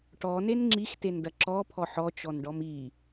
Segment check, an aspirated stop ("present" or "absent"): present